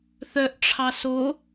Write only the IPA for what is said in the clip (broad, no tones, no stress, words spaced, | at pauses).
θœʔʈ͡ʂʰɑ so